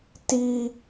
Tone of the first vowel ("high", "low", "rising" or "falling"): high